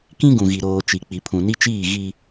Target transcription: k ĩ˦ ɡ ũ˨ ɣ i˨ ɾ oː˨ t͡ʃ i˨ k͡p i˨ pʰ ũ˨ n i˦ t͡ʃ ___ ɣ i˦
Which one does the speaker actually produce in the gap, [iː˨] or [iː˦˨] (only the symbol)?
iː˦˨